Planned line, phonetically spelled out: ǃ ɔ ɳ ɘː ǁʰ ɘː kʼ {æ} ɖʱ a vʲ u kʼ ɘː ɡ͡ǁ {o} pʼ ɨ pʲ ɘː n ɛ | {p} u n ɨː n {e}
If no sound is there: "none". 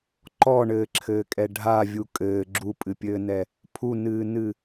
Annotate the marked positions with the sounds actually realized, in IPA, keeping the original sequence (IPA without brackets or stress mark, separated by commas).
ɛ, u, pʰ, ɨ